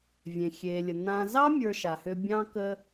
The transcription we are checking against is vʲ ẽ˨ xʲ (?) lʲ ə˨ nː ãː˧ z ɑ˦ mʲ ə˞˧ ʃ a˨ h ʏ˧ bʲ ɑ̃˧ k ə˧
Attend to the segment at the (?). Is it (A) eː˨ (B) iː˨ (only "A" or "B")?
A